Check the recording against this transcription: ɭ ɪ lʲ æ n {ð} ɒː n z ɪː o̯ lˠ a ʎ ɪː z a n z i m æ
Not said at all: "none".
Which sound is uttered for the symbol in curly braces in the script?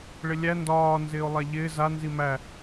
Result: d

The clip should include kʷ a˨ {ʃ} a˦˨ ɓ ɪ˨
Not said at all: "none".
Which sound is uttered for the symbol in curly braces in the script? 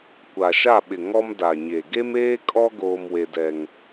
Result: ʃ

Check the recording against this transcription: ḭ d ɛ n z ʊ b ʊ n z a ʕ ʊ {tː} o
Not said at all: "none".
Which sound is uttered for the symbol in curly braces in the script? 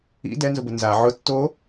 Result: tː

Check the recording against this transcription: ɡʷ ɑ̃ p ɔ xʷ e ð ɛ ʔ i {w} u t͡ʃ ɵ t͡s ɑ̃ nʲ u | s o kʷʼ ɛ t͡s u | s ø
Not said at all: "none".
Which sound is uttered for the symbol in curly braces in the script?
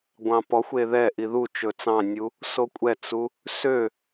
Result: ð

